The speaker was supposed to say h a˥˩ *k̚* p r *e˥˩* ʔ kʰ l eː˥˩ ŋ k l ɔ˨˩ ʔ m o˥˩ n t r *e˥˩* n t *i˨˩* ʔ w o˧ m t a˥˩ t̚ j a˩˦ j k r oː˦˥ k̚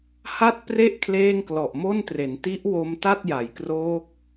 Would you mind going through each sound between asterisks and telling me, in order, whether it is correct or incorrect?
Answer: incorrect, correct, incorrect, incorrect

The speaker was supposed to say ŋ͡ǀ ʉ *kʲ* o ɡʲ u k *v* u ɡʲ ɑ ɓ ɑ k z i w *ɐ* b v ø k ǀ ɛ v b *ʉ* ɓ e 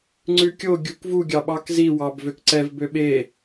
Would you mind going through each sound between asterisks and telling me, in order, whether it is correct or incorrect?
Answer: correct, correct, incorrect, incorrect

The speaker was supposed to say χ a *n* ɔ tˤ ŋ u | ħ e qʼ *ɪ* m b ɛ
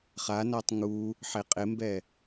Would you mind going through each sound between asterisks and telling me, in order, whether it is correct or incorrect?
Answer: correct, correct

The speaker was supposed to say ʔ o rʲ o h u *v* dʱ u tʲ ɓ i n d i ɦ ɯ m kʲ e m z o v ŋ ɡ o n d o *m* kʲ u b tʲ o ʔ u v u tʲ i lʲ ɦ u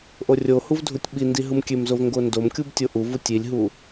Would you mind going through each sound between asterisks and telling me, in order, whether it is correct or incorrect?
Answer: correct, correct

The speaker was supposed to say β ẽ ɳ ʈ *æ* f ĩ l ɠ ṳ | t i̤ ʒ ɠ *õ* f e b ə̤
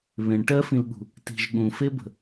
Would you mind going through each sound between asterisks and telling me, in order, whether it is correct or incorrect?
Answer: incorrect, incorrect

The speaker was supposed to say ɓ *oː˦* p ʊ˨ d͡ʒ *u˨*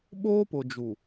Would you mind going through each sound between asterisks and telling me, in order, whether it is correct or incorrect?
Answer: correct, correct

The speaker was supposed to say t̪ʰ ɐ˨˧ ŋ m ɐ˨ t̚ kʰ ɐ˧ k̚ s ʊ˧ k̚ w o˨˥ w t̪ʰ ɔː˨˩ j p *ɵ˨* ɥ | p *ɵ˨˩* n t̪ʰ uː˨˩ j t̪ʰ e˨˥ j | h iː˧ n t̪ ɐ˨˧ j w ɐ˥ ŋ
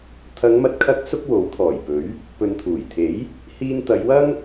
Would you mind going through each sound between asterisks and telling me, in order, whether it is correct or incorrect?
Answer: incorrect, incorrect

